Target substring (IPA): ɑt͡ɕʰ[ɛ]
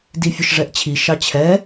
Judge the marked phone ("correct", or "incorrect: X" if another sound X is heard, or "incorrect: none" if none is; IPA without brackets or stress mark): correct